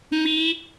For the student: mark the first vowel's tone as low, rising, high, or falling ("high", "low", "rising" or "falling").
high